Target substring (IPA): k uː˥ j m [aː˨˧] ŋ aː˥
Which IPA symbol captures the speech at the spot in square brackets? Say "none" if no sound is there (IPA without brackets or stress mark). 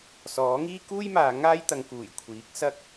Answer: aː˨˧